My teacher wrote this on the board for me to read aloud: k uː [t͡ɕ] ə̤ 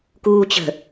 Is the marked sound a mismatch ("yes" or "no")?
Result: no